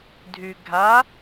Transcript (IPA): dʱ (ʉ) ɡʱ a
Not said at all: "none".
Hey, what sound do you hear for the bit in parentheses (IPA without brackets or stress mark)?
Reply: ʉ